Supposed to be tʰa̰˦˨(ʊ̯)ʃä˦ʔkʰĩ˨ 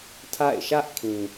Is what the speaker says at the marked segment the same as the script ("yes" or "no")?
no